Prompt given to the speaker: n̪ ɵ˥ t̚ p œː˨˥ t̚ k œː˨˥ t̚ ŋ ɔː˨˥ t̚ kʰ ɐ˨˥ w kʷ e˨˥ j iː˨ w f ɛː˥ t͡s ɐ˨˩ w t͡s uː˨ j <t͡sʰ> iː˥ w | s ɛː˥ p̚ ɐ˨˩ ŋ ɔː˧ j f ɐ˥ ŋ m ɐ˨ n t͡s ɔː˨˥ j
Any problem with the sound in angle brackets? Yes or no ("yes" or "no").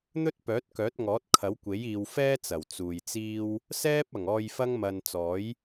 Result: yes